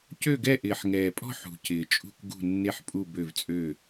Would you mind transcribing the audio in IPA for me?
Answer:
c ø˥˨ ɡ ɛ˥˨ ʔ ɪː˨˩ ħ ŋ ɛː˨˩ pʼ ɔ̤˥˨ ħ ṳ˨˩ c ɪː˨˩ t͡ʃʼ ṳ˥˨ k ɡ ṳ˥˨ nː e˥˨ ħ pʼ u˥˨ b ø˥˨ v t͡sʼ ø˥˨

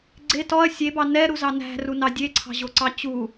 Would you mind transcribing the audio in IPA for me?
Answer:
ɡ͡ǀ e t ɔ ɐ̯ sʲ e b ɑ n ɛ ɾ u z ɑ n æ̤ r u n ɑ dʲ e ǀʰ ɑ̤ ʑ o ǀ ɑ t͡ɕ u

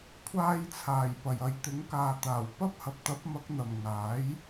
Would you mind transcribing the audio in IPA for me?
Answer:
kʷʰ aː˧ j t͡sʰ aː˨˩ j p ɐ˨˩ j ɐ˨˧ j t̪ ɪ˨˥ ŋ k aː˨ t̪ aː˨˩ w p ɐ˥ p̚ h ɐ˨ p̚ t̪ ɐ˨˥ p̚ m ɐ˨˥ k̚ n̪ ɐ˨˩ m ŋ aː˨˥ j

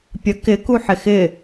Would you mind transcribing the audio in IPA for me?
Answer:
pʲ ə k ɪ k u ħ ɪ x ɪ

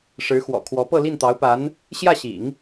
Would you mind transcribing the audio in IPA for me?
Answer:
ʂ ɻ̩˧˥ x w ɔ̰˨˩ kʰ w ɔ˧˥ p ɤ˥˧ l i˥˩ n t̪ ɑ˧˥ ʊ̯ p a˧˥ n | ɕ j ä˥˩ ɕ ḭ˨˩˦ ŋ

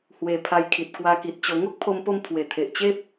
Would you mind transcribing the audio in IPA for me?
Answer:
h w e˧ pʰ a˧ j kʰ i˨ t̚ k w a˧ k i˨ t̚ t͡ɕ o˧ ŋ o˦ k̚ pʰ o˧ m p o˧ m pʰ w e˨˩ t̪ʰ e˨ ʔ t͡ɕ e˦ p̚

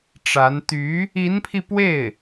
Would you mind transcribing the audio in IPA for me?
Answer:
ʈ͡ʂ a˧˥ n t̪ y˧˥ | i˧˥ n pʰ i˧ p w e˥˩ ɪ̯

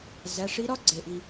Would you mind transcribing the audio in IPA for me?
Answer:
z æ˩˧˩ ʂ i˧˥ ɾ ɒ˥ ɡ͡ǀ e˩ ʔ i˩

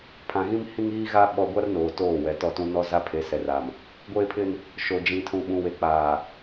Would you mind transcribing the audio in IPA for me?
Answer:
pʰ ã˨ ɣ ĩ˦ m h ĩ˦ ŋ iː˦ ɣ a˦ ɓ ɔ˦ ɡʷ a˦ r n oː˨ t oː˦˨ w ɛ˨ t ɔ˦˨ t ũ˦ n ɔ˦ z a˦ pʰ e˨˦ s ɛ˨ r a˨ m | ɡʷ eː˦ pʰ ɪ˦ n | ʃ o˨ d͡ʒ ĩ˨ tʰ ũ˨ ɓ ũ˨ w e˨ k͡p aː˨

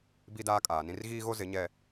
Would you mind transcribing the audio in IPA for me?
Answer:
b i˦ d aː˦ kʼ aː˨ n ĩ˦ r ɣ iː˦ ɣ o˦ z ɪ˨˦ ɲ ɛ˦

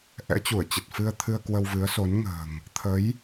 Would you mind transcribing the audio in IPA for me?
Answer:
ʔ ɛ̰˧˥ t͡ɕ u˧˩ ə̯ t͡ɕ ə˨˩ t̚ f ɨ˧ ə̯ t̪ʰ ɨ˧ ə̯ k w ə˧ w v ɨ˨˦ ə̯ s o˨˦ n ŋ ə̤ː˨˩ ŋ | t̪ʰ ə˨˦ j

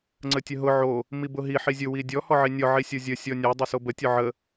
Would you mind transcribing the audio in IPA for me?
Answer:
ŋ͡ǀ ə tʲ ə ɦ ʊ ʕ o | m i b ʊ ɦ i ħ i zʲ ʊ w i dʲ ɔ h ɔ ʕ i nʲ ɔ ʕ i sʲ o zʲ ə sʲ ɔ nʲ a dˤ ʊ s o b ə tʲ ɔ ʕ ə

